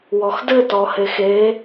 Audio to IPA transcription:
w ɔ x d ɘ t ɔ h e x e

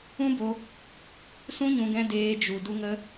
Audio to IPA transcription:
ũ˦ b o˧ | s ũ˦ ɲ ũ˧ ɡ ɛ̃˧ d eː˧ d͡ʒ u˨ d u˧ ŋ ə˧

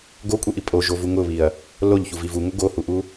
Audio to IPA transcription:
ɡ o kʷʼ i ʔ i pʼ o ʒ o v u ŋ ʊ β i ɐ̯ | l o ʎ ç u v i v u ŋ ʊ ɡ o h u ʔ u

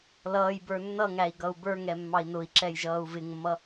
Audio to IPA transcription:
l ʌː j b ə˞ nː ʌ ŋ æ i̯ ɡ ʌ u̯ b ə˞ ŋ ɛ mː ɑ i̯ n ʊ i̯ ǁ ɛ j ʒ ʌː u̯ v ɪ ŋ mː ʌ

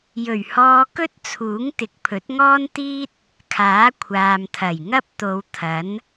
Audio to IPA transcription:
j ɵ˨˩ ɥ h ɔː˧ k ɵ˥ t̚ t͡sʰ uː˨˥ ŋ t̪ ɪ˨ k̚ pʰ ɵ˨˥ t̚ ŋ ɔː˥ n t̪ iː˥ t̚ | kʰ aː˨˥ kʷʰ aː˨ m t̪ʰ ɐ˨˩ j ŋ ɐ˥ p̚ t̪ o˨˧ w t̪ʰ ɐ˨˥ n

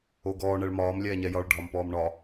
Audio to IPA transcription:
o ɡ ɔː ɳ ɛ ɭ m ɒː m lʲ ɛː ɲ ɛ j ɒ ɭ ɖʱ ɒ m p ɔː m ɳ ɒ

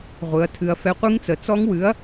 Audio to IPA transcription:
ʁʷ ɨ˩˧ ɐ̯ tʰ ɨ˩˧ ɐ̯ f ɛ˨˥ qʷ ɨ˦˥ ŋ t͡s ə˩˧ t͡s ɔ˦˥ ŋ w ɨ˨˥ ɐ̯

